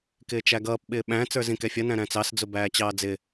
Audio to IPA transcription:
kɪːt͡ʃæɡʌːp ɓɪːɓæ̃ t͡sə˞zĩkɛfʲʌ næ̃ɾæ̃t͡sɑs d͡zʊbæːt͡ɕɑːd͡zɪ

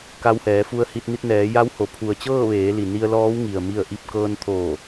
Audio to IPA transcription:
ka˧whɛː˩˧fu˧ə̯hi˧t̚ ni˧t̚nɛː˩˧ja˧˥who˩˧ pʰu˩ə̯ t͡ɕɤː˥˨ʋeː˩˧li˩ ni˧ə̯lɔː˧˥wŋi˩ə̯ mi˥˨ə̯ʔi˥˨p̚ kɤː˧nt̪ʰoː˧˩

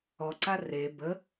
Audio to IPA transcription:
ɔǀa re bə

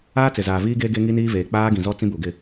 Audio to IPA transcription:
aː˦t͡sɪ˨zaː˨viː˦ ɡeː˦ɡe˦ŋi˦ niː˦veː˨ k͡paː˦ɡĩ˨zɔ˦ t͡sĩ˦bu˨ɡɪ˦˨

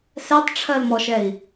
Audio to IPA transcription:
sɛtˤʈ͡ʂʰɜlmɔʃɛi̯

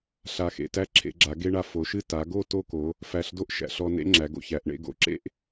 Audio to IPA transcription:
ɬa˧xḛ˧tæ˥ ǁʰḛ˩˧ɡ͡ǁa˩˧ ɡe˥ɳa˧ fo˩˧ʃɨ˥˧ ta˩˧ɡo˥˧ to˥˧ko˩˧ | fæ˧˩ɬdo˥ʔ ʃæ̰˩˧ɬɔ˧nḛ˥ ŋ͡ǁæ˩˧ɡo̰˧çæ˩˧ʔɳḛ˥˧ ɡo̰˧ ǁḛ˥ʔ

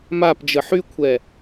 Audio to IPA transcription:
mapd͡ʒə ħykʷʰɛ

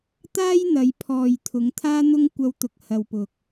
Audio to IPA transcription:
t̪aː˥jn̪ɐ˨˧jpʰɔː˨j t̪ʰʊ˨˧ŋt̪ʰaː˥n̪ʊ˥ŋ kʷɐ˥wt̪ʊ˧k̚ hɐ˨wpʊ˨k̚

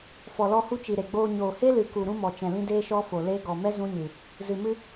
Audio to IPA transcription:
fɔ˨lɔ˧hu˦t͡ʃi˨ ɾe˨ɡ͡boː˧ ɲoː˨he˦lɨ˨ku˨ ɾũ˦mɔ˨t͡ʃɛ̃˨lĩ˦ deː˦ʃɔ˦fo˨ le˦ ɡɔ˨mɛ˦ zũ˦ɲɨ˨ | zɨ˨mɨ˧

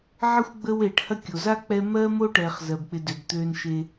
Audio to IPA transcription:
ʕə˥xʷɡ͡bə˦w eː˨ʈhɐ˥kʲo˩ za˥ k͡pɛ˦ mɜ˥mo˥ʈɛː˩χ zɜ˩bk͡pɪ˨dø˩b t̪øː˨nʃe˨

